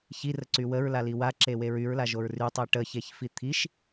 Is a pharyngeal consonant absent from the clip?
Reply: yes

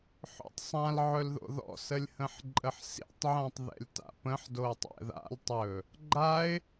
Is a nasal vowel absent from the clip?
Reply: no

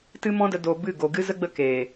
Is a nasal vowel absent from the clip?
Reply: no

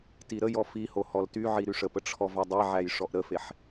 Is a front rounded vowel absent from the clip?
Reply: no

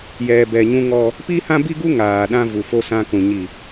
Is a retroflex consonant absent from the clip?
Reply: yes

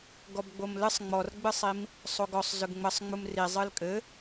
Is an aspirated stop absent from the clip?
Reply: yes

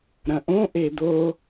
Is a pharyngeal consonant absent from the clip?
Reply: yes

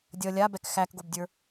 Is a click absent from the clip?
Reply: yes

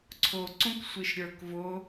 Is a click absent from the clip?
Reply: no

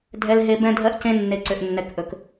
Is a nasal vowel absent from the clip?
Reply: no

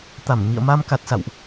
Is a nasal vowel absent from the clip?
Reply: yes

